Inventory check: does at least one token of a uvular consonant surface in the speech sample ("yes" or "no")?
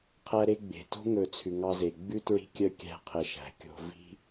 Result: yes